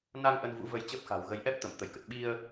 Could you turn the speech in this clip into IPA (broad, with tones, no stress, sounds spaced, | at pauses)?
n a˧ ŋ ʔ ə˧ n v ṵ˧˥ v ə˧ j t͡ɕ əː˦˥ p̚ x a̤˨˩ w ɣ ə˨˦ j ʔ ɛ˦˥ p̚ t̪ ə˧˩ m t̪ ə˧˩ j k ə˨˩ t̚ ɓ i˧ ə̯